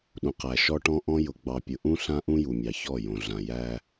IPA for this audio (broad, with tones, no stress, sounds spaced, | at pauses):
ɗ ũ˨ q æ˨ ʃ ɔ˦ ʈ ɔ̃˦ ʔ ɔ̃˦ j ʊ˨ ɡ͡b ɑ˨ pʲ ʊ˨ ʔ ũ˦ ɬ ã˦ ʔ ũ˦ j u˨ mʲ ɑ˨ ç ɔ˦˨ j õ˨ ɮ ã˨ j æ˦